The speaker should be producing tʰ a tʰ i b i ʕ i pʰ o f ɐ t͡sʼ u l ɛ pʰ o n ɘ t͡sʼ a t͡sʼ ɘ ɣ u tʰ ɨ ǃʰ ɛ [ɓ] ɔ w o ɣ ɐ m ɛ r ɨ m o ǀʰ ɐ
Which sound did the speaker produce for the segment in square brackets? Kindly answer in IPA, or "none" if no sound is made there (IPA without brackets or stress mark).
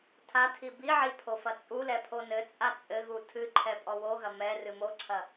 pʼ